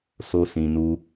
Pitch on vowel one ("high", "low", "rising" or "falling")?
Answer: high